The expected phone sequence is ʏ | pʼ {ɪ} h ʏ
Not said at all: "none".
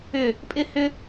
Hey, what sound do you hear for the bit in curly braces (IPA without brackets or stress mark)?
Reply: ɪ